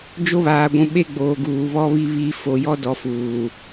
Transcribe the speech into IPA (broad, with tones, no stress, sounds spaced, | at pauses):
d͡ʒ o˦ β aː˨ ɡʷ ũ˨ ɓ e˦ ɡ͡b oː˨ ɡ uː˨ β ɔ˦ β i˦ β iː˦ f o˨ j ɔ˦ d ɔ˨ f uː˨